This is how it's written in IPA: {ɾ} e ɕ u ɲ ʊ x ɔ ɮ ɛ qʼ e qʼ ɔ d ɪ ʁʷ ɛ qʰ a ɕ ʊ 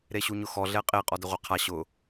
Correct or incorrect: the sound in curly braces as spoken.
correct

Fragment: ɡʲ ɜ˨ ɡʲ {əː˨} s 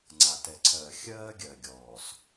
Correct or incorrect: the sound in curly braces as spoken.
incorrect: ɔː˨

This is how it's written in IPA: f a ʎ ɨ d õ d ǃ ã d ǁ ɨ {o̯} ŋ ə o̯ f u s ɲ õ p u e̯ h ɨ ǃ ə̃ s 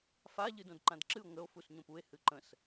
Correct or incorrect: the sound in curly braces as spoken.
correct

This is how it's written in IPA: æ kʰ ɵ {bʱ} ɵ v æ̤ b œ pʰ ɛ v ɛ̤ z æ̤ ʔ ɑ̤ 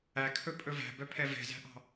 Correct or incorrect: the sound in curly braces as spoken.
incorrect: pʼ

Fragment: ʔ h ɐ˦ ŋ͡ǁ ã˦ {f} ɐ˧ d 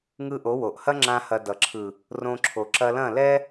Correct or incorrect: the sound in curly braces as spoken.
incorrect: h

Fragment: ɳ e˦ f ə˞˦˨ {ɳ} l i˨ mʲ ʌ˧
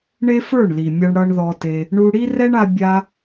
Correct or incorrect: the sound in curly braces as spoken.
correct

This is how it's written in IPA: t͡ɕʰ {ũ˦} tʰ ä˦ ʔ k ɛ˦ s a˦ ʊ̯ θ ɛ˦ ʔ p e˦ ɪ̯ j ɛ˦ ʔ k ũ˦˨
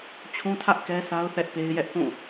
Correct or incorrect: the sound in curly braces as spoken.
correct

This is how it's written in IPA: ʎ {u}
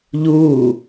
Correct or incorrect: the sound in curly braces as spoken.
incorrect: uː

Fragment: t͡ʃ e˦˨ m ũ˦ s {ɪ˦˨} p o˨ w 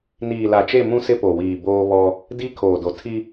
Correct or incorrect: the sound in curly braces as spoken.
incorrect: ɪ˦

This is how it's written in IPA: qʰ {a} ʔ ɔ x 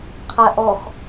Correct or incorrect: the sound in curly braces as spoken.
incorrect: æ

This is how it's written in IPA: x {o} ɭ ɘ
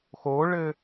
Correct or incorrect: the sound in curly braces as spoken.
correct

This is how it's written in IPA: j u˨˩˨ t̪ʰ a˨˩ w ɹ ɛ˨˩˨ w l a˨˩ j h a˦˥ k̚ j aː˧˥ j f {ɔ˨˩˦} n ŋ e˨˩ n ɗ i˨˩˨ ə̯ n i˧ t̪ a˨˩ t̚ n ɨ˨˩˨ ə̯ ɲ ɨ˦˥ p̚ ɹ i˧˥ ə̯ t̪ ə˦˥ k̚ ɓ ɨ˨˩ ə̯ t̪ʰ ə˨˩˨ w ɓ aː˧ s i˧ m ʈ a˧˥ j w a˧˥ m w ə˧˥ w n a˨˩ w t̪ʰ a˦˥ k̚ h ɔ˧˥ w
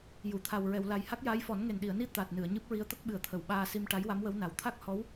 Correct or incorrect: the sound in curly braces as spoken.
correct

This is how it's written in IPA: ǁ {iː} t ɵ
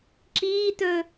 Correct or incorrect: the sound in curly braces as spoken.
correct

